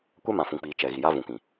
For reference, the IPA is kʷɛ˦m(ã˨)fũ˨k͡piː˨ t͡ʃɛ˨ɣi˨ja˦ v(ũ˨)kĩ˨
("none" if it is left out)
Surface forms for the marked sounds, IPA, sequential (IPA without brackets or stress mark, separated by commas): ã˨, ũ˨